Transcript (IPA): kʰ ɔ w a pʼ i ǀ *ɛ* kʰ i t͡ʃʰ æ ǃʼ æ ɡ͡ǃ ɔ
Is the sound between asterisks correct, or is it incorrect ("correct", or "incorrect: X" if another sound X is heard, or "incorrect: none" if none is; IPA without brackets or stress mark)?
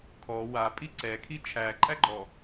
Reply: correct